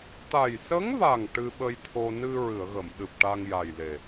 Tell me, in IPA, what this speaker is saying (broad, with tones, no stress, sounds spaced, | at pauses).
t̪ a˨˩ j s ə˧˥ ŋ v a˨˩ ŋ ʈ ɨ˧ ɓ ə˧ j t̪ʰ o˧ n ɨ˧ ɹ ɨ˨˩˨ ə̯ ɣ ə˨˩˨ m ɗ ɨ˨˩ p̚ ʈ a˧ ŋ j a˨˩ j l e˨˩